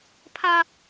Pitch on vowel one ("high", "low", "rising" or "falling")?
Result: high